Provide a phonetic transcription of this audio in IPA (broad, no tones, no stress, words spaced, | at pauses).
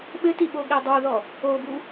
ɓɘtiɓoɠɛ dˤoðɔ | obu